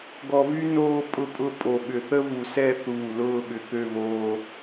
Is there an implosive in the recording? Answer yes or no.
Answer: yes